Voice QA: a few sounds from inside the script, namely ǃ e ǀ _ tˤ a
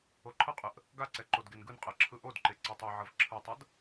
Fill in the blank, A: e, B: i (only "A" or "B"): A